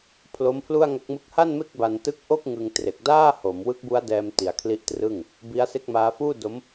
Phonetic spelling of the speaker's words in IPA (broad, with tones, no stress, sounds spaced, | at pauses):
pʰ l o˦˥ m pʰ l u˥˩ a̯ ŋ a˦˥ k̚ m ɯ˥˩ k̚ h a˥˩ n m e˥˩ k̚ b a˧ n t ɯ˦˥ k̚ ʔ o˥˩ k̚ ŋ ɯ˧ ŋ t r e˨˩ k̚ d aː˥˩ h o˩˦ m w ɯ˦˥ k̚ b u˦˥ a̯ d ɛː˧ m t i˧ a̯ kʰ l i˥˩ ʔ t r ɯ˥˩ ŋ | b i˦˥ a̯ s e˥˩ k̚ m aː˦˥ f uː˥˩ d o˦˥ m